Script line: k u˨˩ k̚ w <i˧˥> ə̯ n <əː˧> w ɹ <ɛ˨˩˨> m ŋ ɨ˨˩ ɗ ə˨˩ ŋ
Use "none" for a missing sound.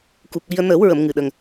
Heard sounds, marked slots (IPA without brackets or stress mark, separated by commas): i˧, əː˨˩˦, ə˨˩˨